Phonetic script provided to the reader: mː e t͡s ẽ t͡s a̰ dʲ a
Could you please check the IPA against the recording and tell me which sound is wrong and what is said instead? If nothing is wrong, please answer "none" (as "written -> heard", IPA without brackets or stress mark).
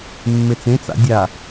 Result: none